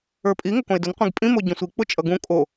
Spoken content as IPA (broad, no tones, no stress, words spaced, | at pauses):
ə˞pʼi ŋʊkõɪ̯dʊn qʷĩɡpʼĩ moɟõsʷi k͡pʊt͡ʃʼʌɡũ kʼo